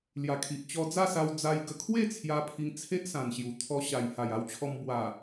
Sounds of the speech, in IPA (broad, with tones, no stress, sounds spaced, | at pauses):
l j a˨˩ kʰ i˨ ʔ t͡ɕ ɔ˧ d͡z a˥˧ s a˧ w d͡z a˧ j ɡ ə˧ kʰ w e˥˧ t͡sʰ j a˧ pʰ i˧ ŋ t͡sʰ e˦ ʔ s ã˨˩ n ɕ j u˨˩ t̪ʰ ɔ˧ ɕ a˨˩ j h a˨˩ j a˧ w t͡ɕʰ ɔ˧ m b w a˨˩